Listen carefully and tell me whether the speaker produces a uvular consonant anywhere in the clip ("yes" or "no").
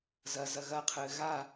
yes